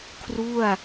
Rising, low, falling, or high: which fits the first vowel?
falling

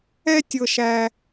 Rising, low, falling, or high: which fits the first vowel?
high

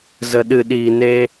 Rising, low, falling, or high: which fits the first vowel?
low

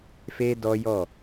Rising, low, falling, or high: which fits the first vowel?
high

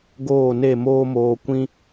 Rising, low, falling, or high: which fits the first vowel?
falling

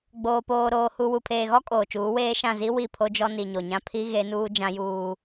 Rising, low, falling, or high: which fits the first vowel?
low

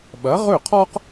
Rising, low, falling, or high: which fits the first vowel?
rising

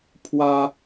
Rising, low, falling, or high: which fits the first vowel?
high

